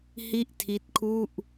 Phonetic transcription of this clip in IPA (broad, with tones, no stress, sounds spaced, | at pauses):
h i˥˩ ʔ tʰ i˦˥ t̚ kʰ u˥˩ ʔ